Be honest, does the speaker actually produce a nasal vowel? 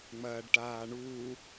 no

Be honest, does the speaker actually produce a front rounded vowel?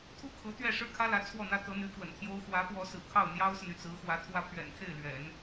yes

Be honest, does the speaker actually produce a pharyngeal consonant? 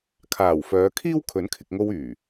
no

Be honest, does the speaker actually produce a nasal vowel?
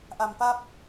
no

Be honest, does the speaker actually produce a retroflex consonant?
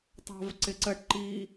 yes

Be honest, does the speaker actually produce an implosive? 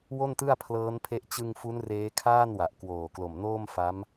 no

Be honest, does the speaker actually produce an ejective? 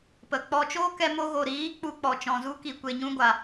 no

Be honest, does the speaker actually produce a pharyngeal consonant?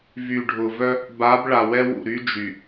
no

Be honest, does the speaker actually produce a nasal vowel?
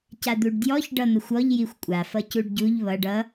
no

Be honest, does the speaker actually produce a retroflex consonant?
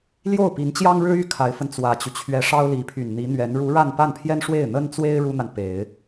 yes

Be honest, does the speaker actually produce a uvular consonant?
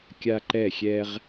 yes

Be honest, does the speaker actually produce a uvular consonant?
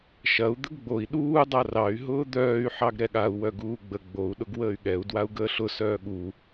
no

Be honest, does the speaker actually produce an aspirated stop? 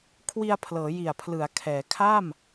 yes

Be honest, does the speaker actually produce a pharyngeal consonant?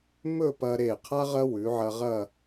yes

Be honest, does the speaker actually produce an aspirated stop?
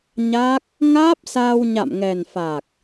no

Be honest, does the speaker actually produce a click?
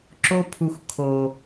yes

